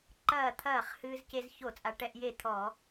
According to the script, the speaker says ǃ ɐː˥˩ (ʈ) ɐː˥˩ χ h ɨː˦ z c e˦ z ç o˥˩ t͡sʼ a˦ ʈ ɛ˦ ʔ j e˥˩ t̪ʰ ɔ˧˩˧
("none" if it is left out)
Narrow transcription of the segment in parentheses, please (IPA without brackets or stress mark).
t̪ʰ